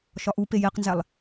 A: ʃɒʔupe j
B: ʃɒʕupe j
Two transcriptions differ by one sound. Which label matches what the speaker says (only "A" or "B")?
A